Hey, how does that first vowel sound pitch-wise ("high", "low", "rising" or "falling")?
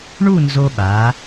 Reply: falling